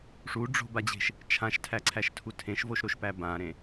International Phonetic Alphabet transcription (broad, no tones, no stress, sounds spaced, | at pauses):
ʂ u ɖ͡ʐ o̤ b a d͡ʑ e̤ ʃ | t͡ʃʰ ã ʃ tʰ æ ǀʰ æ ʃ tʰ u tʰ ẽ ʃ v o ʃ ɾ o ʃ p æ b ã ɾ ẽ